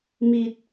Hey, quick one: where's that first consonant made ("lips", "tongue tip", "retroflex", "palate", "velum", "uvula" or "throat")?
lips